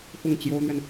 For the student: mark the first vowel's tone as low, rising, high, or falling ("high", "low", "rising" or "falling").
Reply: falling